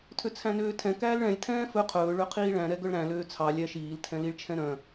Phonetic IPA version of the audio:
tʰ ø t͡sʰ æ̃ n øː tʰ ɛ̃ k æː l ɭ ɛ̃ lʲ tʰ ɛ̃ː f ɵ qʰ ɵː ɭ ø qʰ iː ɭ æ̃ ɾ ɛ ɡ œ ɭ ɾ æ̃ l øː t͡sʰ ɑ lʲ æ ʃ iː l tʰ ɛ̃ l i ɭ t͡ʃʰ ɛ̃ ɾ œ̃

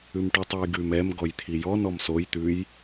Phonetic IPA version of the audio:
ʉ m ʈ ʉ tˤ ʉ j ɡ ʉ m ɛ m ɡ ɔ j t̪ʰ i j ɔ n ɔ m s o j t̪ ʉ j

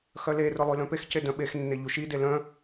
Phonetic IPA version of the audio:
x œ l e r ʊ lˠ y l œ̃ p e x c e d œ̃ ɓ e x nː e ʎ u ʃ i d e l œ̃

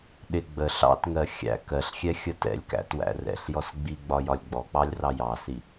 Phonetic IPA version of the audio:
ɗ ɪ ɡ͡b ə ɬ ɑ̰ t ŋ ɜ xʲ æ̰ k ɜ ɬ xʲ ɛ xʲ ə t ɛ̰ lʲ k æ̰ t w æ̰ r ɛ̰ ɬ j ɔ s ɡ͡b i ɡ͡b ɒ j ɒ lʲ ɡ͡b ɔ k͡p ɑ lʲ r ɑ j ɑ s i

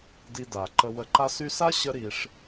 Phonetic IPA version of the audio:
d i˧ d a˨ ǃ ə˧ w ə˨ ǃ a˧ s y˧ s a˦ ɕ ə˦ ɾ i˧ ʂ

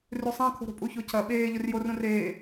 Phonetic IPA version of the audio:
r ʉ sˤ ã kʰ o̤ ɾ o̤ pʼ u ç o cʰ ɐ ɓ eː ʎ ɵ r j o r ũ r eː

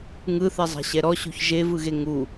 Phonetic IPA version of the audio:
ŋ ɯ θ ɛ zˤ a̤ ɕ ɛ ɾ ɔ ɕ o̤ ç ʒ e v ɯ ɣ e ŋ u

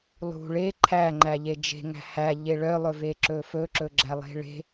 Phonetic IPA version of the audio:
lˠ ṳ ɭ e ǃʰ æ ŋ͡ǃ æ ʎ e d͡ʒ e̤ ŋ æ̤ h æ ʎ e ɭ œ lˠ ɵ v e ǁ ɵ f ɵ ǁ ɵ ɡ͡ǁ æ lˠ e̤ ɭ e̤

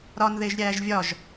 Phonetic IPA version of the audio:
ɾ ɒ n ð e ʒ ɾʲ æː ʒ vʲ ɒ ʒ

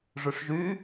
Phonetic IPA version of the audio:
ʐ y ʂ ʒ y

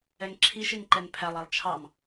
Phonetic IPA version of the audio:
ɛ ŋ ǁʰ i ʃ i n ǃ ɛ n pʰ æ lˠ æ lˠ t͡ʃʰ ɑ m

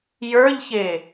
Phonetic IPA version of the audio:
j ə˞ ʎ ç e

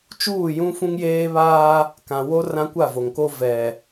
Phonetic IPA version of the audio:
t͡ʃ uː˦˨ j ũ˦ f ũ˦ ŋ j eː˦ β aː˦ | k ã˨ w o˦ r ã˦ kʷ a˦˨ v o˨ ŋ k o˦ v ɛ˨

